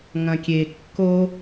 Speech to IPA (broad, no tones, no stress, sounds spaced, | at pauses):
ŋ ɐ̃ kʲ e kː o